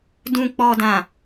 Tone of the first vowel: low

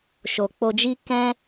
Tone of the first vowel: low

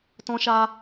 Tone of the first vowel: high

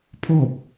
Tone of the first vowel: falling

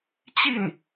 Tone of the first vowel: falling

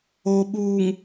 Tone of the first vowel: low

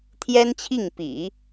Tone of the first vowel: high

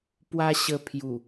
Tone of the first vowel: high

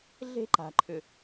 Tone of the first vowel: high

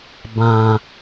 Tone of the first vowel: low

